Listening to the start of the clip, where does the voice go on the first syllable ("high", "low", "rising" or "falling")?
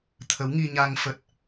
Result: rising